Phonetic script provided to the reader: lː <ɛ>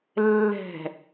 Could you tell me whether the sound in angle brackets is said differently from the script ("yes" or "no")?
yes